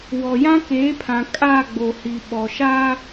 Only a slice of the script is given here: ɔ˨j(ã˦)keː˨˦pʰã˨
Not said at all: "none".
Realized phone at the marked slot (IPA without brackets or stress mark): ã˦